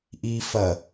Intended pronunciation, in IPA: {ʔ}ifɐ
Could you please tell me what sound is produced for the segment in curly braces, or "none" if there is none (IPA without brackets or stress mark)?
ʔ